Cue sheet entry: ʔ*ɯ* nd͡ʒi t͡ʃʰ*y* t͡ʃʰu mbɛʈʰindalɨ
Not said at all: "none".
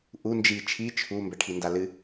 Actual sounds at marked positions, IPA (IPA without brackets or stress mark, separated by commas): u, i